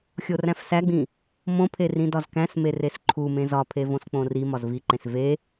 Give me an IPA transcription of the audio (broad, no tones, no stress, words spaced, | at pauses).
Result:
xʲoræ̃fsæɡ͡bĩ | mõpʰe rĩdɒzkæ̃sme resǃʰumẽ zɒpʰe võsk͡põrimɒz viǃẽs ve